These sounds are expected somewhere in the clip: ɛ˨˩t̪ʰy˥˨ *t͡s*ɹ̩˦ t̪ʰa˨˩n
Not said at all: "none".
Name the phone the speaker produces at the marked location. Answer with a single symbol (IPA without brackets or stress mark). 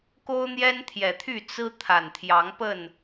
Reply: t͡s